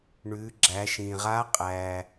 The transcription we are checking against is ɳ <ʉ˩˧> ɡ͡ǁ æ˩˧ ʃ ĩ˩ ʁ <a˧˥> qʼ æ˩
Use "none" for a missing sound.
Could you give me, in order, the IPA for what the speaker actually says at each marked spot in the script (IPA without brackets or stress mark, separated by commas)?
ʉ˩˧, a˧˥